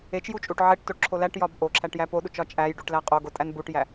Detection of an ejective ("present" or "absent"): present